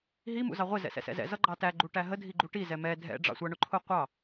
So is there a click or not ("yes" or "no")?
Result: yes